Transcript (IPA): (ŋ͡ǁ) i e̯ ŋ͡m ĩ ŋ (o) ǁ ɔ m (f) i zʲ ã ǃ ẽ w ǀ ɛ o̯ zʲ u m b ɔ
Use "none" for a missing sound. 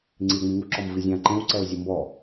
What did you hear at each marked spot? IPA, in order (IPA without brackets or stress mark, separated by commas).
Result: ŋ͡ǀ, u, v